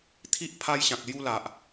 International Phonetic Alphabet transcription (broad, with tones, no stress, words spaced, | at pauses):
t̪ʰi˦ʔ pʰa˧jɕã˨k̚lju˧ la˨ʔ